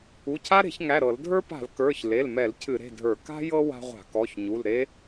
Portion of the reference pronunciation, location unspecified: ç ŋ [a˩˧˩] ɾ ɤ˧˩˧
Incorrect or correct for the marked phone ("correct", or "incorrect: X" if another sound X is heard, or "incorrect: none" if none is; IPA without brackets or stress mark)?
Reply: incorrect: æ˩˧˩